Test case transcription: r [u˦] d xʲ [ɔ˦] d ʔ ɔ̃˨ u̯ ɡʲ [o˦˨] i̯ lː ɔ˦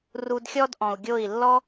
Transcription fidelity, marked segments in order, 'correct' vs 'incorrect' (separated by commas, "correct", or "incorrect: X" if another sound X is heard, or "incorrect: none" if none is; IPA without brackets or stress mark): incorrect: u˧, correct, correct